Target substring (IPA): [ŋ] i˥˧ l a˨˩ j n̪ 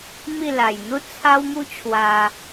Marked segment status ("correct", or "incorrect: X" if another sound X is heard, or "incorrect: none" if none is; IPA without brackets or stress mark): incorrect: m